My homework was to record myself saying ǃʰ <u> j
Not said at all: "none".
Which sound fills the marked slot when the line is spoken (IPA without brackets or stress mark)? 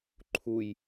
u